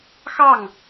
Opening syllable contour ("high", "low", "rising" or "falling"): falling